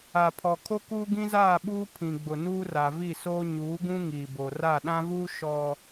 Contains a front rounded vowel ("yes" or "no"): no